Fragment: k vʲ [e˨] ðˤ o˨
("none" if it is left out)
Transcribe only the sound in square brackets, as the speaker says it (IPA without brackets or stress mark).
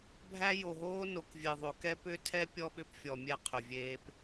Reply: e˨